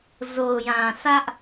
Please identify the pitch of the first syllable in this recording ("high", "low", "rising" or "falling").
low